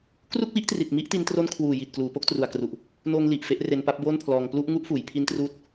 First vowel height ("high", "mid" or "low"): high